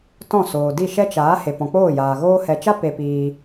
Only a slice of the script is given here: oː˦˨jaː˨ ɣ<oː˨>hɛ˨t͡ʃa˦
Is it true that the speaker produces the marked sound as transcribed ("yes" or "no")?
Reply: no